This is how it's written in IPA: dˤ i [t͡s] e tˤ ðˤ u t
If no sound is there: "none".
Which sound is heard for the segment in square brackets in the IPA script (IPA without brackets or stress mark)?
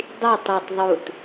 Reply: tˤ